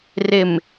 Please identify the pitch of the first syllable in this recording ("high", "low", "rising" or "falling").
low